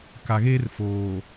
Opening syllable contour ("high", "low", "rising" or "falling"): low